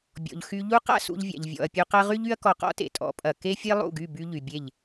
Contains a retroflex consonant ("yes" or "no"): no